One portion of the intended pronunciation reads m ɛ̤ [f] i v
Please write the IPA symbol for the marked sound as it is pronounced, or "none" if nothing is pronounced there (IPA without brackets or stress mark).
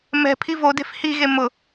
pʰ